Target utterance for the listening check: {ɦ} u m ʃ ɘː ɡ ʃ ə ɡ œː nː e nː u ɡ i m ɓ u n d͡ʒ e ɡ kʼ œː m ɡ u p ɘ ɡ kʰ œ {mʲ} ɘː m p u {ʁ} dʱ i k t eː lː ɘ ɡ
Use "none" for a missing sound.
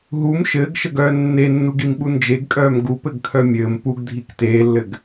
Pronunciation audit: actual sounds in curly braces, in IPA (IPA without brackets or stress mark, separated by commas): ɦ, mʲ, ɡ